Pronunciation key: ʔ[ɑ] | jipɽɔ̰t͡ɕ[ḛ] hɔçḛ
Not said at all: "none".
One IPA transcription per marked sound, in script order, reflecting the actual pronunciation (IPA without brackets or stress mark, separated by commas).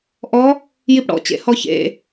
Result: ɔ, ḛ